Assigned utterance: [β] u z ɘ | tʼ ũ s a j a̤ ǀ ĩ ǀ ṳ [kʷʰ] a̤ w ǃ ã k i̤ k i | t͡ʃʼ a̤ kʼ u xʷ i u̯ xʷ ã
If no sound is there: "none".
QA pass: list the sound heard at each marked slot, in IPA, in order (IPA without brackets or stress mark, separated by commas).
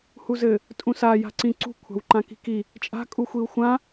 h, kʷʰ